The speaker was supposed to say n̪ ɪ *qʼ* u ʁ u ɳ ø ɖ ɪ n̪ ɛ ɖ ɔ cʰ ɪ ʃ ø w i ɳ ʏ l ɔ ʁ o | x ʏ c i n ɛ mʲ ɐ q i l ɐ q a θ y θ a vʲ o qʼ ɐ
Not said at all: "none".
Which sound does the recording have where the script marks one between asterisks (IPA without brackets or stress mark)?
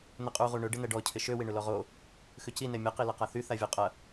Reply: qʼ